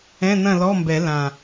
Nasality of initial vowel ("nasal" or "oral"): nasal